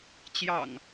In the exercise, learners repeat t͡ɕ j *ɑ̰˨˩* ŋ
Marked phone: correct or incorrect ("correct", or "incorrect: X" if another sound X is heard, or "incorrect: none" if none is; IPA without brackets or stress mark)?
correct